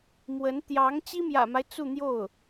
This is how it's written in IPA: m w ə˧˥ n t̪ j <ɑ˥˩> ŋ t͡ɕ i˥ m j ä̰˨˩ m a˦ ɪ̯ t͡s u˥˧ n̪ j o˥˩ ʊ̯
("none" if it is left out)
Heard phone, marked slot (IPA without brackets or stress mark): ɑ˧˥